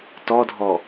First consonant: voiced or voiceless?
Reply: voiceless